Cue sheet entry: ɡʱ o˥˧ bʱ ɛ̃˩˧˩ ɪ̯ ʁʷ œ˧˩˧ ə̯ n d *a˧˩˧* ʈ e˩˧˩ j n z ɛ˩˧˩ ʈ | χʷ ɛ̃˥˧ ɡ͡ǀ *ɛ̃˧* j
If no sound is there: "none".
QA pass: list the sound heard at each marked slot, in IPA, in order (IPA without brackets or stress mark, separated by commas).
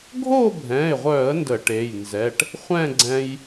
ə˧˩˧, ɛ̃˧